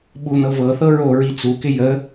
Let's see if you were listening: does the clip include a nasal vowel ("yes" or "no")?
no